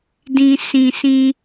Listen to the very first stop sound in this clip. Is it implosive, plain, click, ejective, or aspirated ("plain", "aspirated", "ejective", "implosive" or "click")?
plain